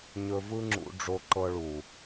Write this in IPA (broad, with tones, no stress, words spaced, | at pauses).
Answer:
ɲɵ˧vɯ˦ŋ͡ǁṵ˧ ɖ͡ʐo˧ǃɤ˧ ɭu˨